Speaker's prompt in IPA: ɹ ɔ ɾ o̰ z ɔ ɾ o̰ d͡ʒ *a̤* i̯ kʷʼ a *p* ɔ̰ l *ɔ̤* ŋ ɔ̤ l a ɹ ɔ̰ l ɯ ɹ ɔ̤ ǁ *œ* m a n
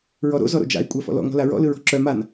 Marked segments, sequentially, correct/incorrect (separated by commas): incorrect, incorrect, incorrect, correct